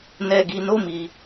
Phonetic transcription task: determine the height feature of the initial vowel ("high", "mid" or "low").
mid